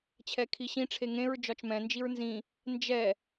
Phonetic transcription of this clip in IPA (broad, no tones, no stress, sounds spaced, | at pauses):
t͡ɕʰ ɛ kʰ i ɕ ĩ ʈ͡ʂʰ e ŋ ẽ ɹ d͡ʒ ɒ t͡ʃ m ɛ̃ n d͡ʒ i ɹ n z ĩ | n d͡ʒ ɛ